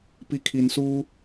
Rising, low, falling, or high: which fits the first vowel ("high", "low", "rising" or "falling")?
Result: low